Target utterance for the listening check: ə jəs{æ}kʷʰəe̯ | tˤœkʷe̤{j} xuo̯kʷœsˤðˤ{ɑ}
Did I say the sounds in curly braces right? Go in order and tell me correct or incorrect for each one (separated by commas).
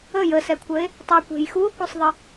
incorrect, correct, incorrect